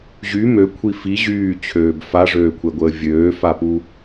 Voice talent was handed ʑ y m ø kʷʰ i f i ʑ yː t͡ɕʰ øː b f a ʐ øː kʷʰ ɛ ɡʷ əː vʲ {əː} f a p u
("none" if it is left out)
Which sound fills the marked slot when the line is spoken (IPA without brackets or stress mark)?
øː